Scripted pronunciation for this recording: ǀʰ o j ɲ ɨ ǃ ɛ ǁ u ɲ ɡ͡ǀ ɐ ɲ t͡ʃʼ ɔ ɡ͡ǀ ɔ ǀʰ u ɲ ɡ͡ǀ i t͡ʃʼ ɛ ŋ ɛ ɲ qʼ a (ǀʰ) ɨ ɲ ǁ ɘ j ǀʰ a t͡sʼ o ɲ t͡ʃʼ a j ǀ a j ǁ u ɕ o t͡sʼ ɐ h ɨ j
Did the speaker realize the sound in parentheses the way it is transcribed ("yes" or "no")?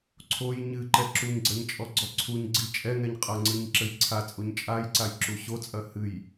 no